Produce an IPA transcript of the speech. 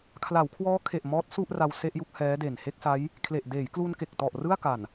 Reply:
kʰla˩˦wkʰwɔː˦˥kʰe˨˩ʔ mɔː˦˥t̚ su˥˩ʔ ra˧w se˥˩ʔju˦˥k̚ hɛː˦˥de˨˩n he˥˩k̚sa˦˥j | kʰle˨˩ʔdeː˩˦jklu˧nke˨˩k̚ tɔ˨˩ʔ rɯ˥˩a̯ka˨˩n

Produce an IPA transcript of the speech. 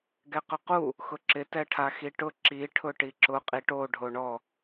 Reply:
ɡɛqʊqu | xʊǁɪ tɛʈʰaxiʈʊ ǁi ʈʰʊʈiǁʊ qʼiʈo ɖʱoɳɔ

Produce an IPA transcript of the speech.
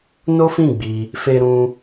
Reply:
no˦fĩ˦˨ɡ͡bi˧ | fe˧ɾũ˧

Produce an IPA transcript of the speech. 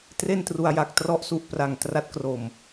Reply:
tre˥˩ntru˧a̯ja˨˩k̚ trɔ˦˥ʔsu˨˩ʔpra˨˩ŋ tra˦˥t̚kro˨˩m

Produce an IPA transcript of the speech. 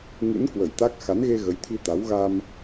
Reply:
ŋɨ̰˧˥n kwə˧˩jt̪a˦˥k̚ xa˨˦nɣe˧ ɣə˨˦jt̪ʰi˧t̪a˨˦w ɣa˧m

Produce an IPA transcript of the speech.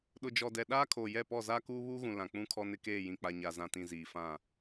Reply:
ɗʊ˨d͡ʒɔ˨dɛ˨ ɗaː˦kʰoː˨jɛ˦˨pɔ˦˨ zaː˦kuː˦βuː˦ɣũ˨ lã˨k͡pũ˦kʰɔ˦ nɪ˦keː˦˨jĩ˨ k͡pa˨ɲa˨zã˨tĩ˨ ziː˨fã˦˨

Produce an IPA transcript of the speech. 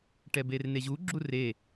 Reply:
ʈɛberneʑu ɡ͡ǁure

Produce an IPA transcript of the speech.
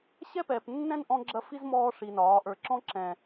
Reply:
ɕɛ˦pɛː˨pnːɛ̃˦n ʔɔ̃˦ɡ͡ǁɐ˦ fi˦z mɔː˦ ʂi˨nɒː˨˦ ʔə˞˨ǁɔ̃˦ ǁɛ̃˨

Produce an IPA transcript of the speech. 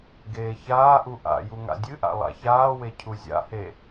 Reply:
ɡeːçaːʔu ʔa̰ju ŋa̰dʲɨʔa̰ lˠa̰çaːwe cʰuzʲa̰he

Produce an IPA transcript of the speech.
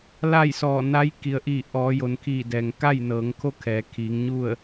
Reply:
la˥˨jsɔː˧˩ na˧˥j ki˩ə̯ʔiː˧˩ ʔɔː˩˧jo˩n kʰiː˧˩dɛː˩ŋ ka˥˨jnɤː˩˧ŋkʰo˥˨kʰɛː˩˧ kʰiː˩˧ŋɲu˥˨ə̯

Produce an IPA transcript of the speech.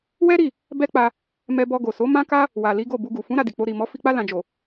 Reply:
wɛ˦ɾi˦˨ | bɛ˦k͡pa˧ | mɛ˧bɔ˧ɡo˨so˨˦ mã˦ka˦ | wa˨li˨˦ ɡo˦˨bu˧ɡu˨ fũ˨˦ ɾa˧di˨k͡po˧ ɾi˨mɔ˨˦ fi˧k͡pa˦ lã˧ d͡ʒo˨

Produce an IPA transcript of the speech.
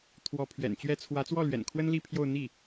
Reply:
t̪ʰwɔ˧˥pʰɥɛ̰˨˩nt͡ɕɥɛ˥ t͡sʰwä˧˥t͡swɔ˥˩lɥɛ̰˨˩nkʰwə˥n li˥˧pʰjo˥˧ʊ̯n̪i˥˩

